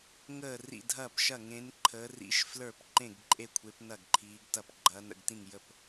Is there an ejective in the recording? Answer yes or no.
yes